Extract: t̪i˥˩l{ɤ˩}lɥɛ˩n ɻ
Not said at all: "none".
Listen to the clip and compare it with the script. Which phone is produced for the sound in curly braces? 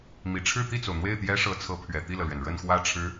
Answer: ɤ˩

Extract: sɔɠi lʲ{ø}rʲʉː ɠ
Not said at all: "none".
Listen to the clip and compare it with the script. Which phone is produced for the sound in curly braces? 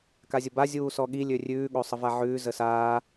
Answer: ø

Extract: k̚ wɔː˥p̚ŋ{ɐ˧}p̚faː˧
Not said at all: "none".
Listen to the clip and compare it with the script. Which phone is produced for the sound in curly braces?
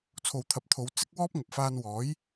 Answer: ɐ˨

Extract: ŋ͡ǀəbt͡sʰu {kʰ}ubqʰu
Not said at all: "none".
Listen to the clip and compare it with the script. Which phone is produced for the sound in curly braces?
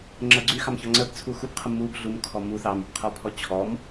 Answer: x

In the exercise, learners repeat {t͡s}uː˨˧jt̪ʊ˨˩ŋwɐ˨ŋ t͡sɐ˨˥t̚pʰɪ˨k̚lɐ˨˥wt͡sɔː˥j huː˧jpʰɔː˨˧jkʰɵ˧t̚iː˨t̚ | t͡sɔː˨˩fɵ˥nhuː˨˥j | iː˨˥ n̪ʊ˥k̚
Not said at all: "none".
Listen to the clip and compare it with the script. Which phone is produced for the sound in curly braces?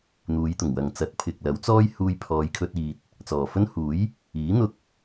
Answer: n̪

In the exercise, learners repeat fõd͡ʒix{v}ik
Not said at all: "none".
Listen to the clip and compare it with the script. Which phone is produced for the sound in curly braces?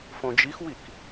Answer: w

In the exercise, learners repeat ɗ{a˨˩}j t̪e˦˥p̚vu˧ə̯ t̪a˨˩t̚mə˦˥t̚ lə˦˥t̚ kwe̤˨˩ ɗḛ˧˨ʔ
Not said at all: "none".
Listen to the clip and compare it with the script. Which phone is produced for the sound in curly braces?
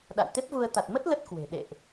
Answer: a̰˧˨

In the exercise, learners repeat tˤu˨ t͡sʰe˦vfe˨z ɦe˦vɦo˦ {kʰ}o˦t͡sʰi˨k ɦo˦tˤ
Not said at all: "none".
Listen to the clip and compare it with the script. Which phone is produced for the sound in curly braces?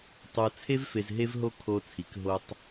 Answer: kʰ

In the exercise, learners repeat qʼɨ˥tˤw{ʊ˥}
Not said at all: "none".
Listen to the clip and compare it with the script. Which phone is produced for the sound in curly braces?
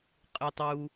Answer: u˥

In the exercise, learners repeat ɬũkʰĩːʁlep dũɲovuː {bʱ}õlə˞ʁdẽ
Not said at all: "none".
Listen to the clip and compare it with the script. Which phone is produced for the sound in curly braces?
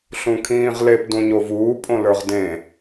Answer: pʼ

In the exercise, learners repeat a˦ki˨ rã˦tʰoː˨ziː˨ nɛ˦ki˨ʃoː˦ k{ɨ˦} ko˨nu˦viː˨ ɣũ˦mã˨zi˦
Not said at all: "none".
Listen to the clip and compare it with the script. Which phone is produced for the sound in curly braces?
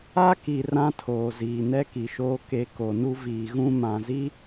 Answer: e˦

